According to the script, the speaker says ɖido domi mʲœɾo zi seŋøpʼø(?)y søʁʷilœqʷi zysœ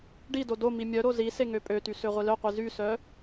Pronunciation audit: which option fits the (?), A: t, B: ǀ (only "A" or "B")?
A